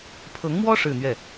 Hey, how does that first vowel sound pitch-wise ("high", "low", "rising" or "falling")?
rising